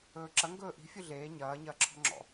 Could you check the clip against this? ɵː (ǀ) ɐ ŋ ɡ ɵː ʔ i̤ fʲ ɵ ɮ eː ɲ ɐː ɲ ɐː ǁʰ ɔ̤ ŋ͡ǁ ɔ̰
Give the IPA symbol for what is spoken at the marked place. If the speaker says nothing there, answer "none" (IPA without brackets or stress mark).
ǁ